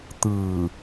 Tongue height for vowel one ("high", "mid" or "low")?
high